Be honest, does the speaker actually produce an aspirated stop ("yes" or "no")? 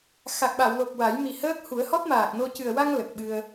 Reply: no